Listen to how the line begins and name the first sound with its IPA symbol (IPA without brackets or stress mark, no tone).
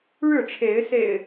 ɻ